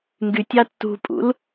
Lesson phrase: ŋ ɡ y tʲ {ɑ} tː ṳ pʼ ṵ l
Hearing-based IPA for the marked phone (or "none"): ɑ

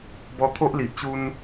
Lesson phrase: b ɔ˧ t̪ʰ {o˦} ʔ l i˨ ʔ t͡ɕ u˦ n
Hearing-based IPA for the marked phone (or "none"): o˦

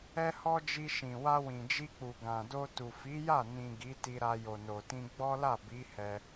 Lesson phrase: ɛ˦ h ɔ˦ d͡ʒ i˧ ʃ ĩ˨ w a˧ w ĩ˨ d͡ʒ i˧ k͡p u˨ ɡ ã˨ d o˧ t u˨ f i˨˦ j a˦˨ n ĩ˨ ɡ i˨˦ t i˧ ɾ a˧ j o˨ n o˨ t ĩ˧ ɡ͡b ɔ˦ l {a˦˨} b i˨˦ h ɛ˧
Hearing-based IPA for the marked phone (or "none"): a˦˨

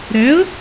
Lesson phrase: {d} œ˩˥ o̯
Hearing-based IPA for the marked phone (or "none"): ɾ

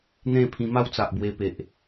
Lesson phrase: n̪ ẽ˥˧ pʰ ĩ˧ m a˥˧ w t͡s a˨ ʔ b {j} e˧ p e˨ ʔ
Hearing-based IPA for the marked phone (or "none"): w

